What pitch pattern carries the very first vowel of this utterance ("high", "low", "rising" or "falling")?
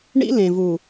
high